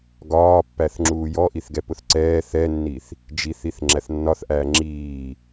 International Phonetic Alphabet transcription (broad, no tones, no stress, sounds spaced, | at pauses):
ɡ ɒː pː æ θ ŋ͡ǁ uː j ɔ ʔ i θ ɡ ɛ p ʊ θ ǀ ɛː θ ɛ nː i θ | d͡ʒ i θ i θ ŋ͡ǁ æ θ nː ɒ θ ʔ æː ŋ͡ǁ iː